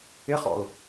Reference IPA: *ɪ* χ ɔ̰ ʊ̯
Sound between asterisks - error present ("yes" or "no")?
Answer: no